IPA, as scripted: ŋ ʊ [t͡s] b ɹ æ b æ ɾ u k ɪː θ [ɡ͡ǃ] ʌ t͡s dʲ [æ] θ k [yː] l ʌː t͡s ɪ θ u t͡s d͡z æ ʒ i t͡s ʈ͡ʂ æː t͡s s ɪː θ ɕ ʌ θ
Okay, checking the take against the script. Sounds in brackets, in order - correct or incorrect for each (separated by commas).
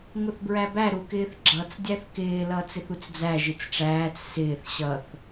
incorrect, incorrect, correct, incorrect